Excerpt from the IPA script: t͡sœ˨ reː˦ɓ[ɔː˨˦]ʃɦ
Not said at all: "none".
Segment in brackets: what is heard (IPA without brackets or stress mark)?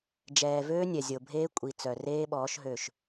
ɔː˨˦